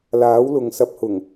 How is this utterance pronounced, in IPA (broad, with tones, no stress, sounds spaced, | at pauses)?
l aː˨˥ w l ʊ˨ ŋ s ɐ˧ p̚ h ʊ˨˩ ŋ